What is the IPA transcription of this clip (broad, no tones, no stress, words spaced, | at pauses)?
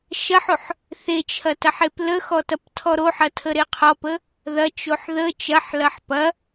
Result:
ʃɐħoħ | θet͡ʃʰɐtɐħep ləxɔtɐptʰɔ ɾoħɐtʰəɾe qʰɔpə | ðɐt͡ʃoħ ðə t͡ʃɐħlɐħ pɐ